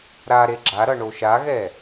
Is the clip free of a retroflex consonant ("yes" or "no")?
no